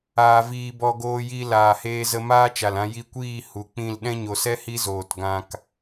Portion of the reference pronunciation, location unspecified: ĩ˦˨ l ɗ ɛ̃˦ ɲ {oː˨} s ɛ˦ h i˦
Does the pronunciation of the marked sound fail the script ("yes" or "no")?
yes